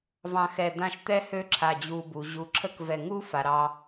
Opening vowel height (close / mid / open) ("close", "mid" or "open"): open